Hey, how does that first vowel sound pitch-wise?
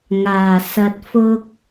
low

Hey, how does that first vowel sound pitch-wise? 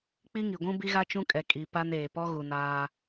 high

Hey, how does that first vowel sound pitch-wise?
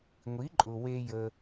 rising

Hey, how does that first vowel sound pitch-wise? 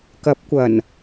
rising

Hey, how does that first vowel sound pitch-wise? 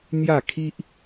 falling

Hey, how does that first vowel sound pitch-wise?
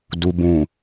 low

